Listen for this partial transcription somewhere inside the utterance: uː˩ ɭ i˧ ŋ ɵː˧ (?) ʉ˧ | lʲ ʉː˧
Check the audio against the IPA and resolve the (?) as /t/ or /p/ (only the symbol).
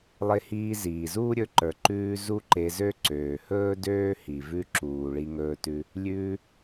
t